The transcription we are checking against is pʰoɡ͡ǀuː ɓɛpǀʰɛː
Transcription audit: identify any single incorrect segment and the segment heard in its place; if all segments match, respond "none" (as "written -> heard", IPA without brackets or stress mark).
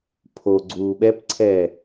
none